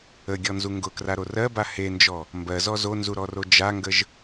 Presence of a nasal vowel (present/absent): absent